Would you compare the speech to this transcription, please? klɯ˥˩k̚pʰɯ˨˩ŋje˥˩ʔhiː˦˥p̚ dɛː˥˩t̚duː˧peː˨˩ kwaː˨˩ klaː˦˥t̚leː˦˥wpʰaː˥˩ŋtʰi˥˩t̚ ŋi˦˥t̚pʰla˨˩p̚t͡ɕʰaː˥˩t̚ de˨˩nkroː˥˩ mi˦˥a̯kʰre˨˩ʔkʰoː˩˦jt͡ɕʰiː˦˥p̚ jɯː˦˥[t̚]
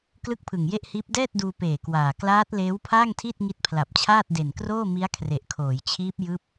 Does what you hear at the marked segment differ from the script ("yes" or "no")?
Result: yes